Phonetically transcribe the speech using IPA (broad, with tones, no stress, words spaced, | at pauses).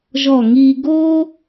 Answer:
ʒɔ˧˩ŋi˧ ɡo˥